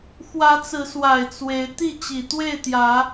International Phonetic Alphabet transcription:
xwä˨˦t͡sɹ̩˨˦swa˨˩ɪ̯ t͡swe˨˦ɪ̯ t̪i˥˨t͡ɕi˨˩t̪we˥˨ɪ̯t̪jä˨˦

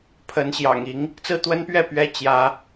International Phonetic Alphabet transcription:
pʰə˨˦nɕjɑ̰˨˩ŋ i˨˦ŋ | t͡sɹ̩˦t̪wə˦npɥɛ˥˨ pɥɛ˦ t͡ɕjä˨˦

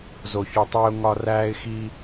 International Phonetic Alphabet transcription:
zo˨çu˨tˤiː˧ʊ̯ ŋɒ˧ræː˦ɪ̯xi˦

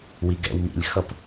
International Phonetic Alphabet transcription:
wiɡɛ̰w mḭlʲxʌp

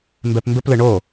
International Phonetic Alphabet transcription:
mbɛpmbɘp lɪɳo

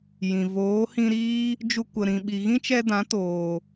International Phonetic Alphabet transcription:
jĩ˨ voː˨˦hĩ˧ɾiː˦ | d͡ʒu˧kʷə˨ ɾĩ˨ ɓi˨ɣĩ˦t͡ʃɛ˧dã˨˦ toː˨

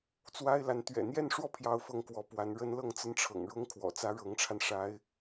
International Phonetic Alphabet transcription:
t͡swa˥ɪ̯la˧˥n t̪ɥɛ̰˨˩ n̪jɛ˥˧nʂwɔ˥˧ pʰjɑ˥˧ʊ̯fɤ˥˩ŋkwɔ˧˥pwa˧˥n ɻə˥nlɤ˥˩ŋt͡sə˥nʈ͡ʂʰɤ̰˨˩ŋ ɻʊ˥ŋ kʰwɔ̰˨˩t͡sä˥ɻɤ˧˥ŋʈ͡ʂʰa˧n ʂa˧˥ɪ̯

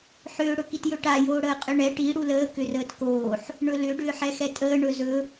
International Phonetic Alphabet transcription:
ħʏː ɽɵkitjɵʈa joːɽəːqʼʏɳɛ ʈi ɽuləː kʏrəːtkoːħ | ɳɵlʏ ɖʏːħɛxɛtʼəː ɳɵzɵ

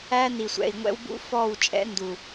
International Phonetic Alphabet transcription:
æ˦ni˨sʷɛ̰˨i̯ ŋʷɛ̰˦wbṵ˦fɔ˦˨w t͡ʃʼɛ̰˦ndu˨

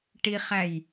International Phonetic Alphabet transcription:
ʈiχæj

